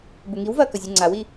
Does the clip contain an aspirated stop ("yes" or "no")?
no